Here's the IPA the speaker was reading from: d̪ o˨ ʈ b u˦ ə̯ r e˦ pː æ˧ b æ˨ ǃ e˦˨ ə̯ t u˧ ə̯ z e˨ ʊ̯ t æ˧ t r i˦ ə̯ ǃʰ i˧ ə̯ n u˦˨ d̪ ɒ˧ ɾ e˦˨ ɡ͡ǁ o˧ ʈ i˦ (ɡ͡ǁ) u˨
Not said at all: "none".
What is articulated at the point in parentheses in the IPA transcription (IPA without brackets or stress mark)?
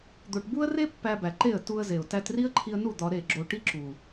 ǁ